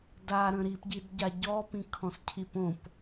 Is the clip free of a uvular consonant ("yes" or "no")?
yes